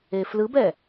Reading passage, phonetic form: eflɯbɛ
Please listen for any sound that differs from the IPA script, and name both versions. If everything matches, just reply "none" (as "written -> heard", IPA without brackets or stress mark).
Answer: none